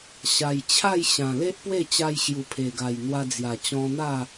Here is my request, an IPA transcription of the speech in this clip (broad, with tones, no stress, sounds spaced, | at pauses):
ɕ a˨˩ j t͡ɕʰ a˥˧ j ɕ ã˨˩ l e˦ ʔ p w e˥˧ t͡ɕ a˧ j ɕ j u˨˩ pʰ e˨˩ ɡ a˨˩ j n̪ w a˧ d͡z j a˨˩ t͡ɕ ɔ̃˧ n̪ a˥˧